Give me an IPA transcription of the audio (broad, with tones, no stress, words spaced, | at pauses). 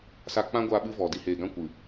sa˧k͡pã˦ɡʷaː˧ ɓɨ˦vɔ˨di˧ heː˨ɡã˦ kʷɨ˨